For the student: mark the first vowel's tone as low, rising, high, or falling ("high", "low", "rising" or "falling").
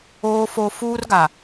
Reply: high